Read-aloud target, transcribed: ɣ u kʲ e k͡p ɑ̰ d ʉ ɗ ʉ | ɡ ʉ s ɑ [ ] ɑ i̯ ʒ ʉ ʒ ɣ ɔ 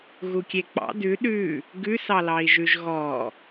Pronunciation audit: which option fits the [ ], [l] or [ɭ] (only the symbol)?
l